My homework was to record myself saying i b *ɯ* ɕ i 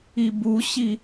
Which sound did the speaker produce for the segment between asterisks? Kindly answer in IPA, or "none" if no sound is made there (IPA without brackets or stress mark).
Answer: u